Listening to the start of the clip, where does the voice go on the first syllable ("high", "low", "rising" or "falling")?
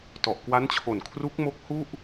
low